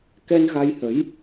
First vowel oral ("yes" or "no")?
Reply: yes